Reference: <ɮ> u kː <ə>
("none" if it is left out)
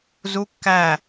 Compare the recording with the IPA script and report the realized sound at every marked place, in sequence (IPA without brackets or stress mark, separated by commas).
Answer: z, æ